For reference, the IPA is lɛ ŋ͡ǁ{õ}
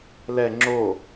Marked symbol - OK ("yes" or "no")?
no